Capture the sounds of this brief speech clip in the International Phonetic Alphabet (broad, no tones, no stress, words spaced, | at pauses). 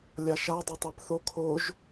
lʲaʃa dˤotˤapθo kʰoʒ